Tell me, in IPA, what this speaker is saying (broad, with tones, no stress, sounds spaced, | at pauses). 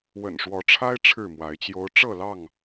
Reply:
w ə̰˨˩ n ʂ w ɔ˨˦ ʈ͡ʂʰ a˦ ɪ̯ ʈ͡ʂʰ ɻ̩˥˨ m w a˨˦ ɪ̯ t͡ɕ j o˦ ʊ̯ ʈ͡ʂ ɤ˥˨ l ɑ˥˨ ŋ